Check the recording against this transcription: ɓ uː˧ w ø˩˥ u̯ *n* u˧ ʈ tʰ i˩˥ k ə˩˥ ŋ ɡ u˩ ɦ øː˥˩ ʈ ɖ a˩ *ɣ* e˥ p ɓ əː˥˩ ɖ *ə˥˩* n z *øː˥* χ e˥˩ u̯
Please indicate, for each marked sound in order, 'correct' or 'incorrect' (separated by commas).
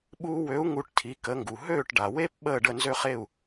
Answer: incorrect, incorrect, correct, incorrect